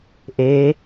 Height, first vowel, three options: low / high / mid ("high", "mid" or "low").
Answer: mid